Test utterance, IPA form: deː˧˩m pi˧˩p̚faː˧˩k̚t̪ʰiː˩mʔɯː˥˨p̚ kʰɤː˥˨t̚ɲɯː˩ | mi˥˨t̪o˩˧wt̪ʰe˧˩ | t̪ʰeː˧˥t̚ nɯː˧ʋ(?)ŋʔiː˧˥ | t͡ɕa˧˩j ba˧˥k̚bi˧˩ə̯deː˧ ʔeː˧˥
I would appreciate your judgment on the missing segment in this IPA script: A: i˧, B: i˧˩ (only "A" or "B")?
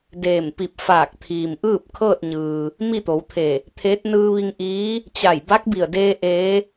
A